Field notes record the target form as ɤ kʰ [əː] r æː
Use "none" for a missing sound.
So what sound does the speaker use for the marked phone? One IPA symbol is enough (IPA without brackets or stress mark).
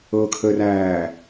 əː